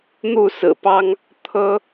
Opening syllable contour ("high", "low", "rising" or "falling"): falling